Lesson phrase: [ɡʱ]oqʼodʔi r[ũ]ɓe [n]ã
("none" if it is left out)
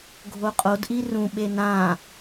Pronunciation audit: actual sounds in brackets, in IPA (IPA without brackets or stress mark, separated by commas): ɡʱ, ũ, n